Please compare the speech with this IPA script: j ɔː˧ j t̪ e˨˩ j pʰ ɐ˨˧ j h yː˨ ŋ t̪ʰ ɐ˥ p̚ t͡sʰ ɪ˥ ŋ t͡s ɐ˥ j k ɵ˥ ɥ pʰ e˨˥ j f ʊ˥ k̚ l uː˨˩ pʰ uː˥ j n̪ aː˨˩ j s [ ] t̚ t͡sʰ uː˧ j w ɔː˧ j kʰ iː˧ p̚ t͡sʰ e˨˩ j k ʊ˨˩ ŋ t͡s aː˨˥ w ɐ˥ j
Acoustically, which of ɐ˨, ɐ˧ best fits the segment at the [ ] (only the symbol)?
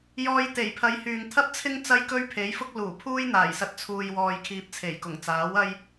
ɐ˧